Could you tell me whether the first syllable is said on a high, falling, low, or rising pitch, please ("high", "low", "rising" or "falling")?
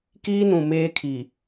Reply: high